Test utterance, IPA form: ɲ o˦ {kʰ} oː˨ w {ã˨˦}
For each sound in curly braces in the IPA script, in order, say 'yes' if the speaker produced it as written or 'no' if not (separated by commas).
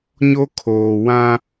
yes, no